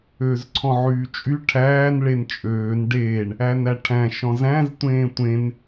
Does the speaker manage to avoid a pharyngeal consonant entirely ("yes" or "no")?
no